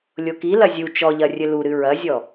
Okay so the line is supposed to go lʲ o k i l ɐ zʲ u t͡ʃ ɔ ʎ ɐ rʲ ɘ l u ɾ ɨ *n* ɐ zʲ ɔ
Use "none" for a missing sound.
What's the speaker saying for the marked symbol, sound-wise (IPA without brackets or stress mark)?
ɹ